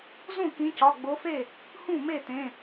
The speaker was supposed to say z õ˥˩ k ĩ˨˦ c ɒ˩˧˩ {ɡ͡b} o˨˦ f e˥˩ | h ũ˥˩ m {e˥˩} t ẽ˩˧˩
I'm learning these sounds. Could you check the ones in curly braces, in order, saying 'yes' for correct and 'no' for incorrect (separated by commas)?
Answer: yes, yes